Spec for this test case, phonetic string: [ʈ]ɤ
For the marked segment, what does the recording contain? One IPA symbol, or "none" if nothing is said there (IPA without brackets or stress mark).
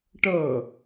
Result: ʈ